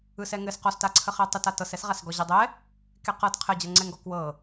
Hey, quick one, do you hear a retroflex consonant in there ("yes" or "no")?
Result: no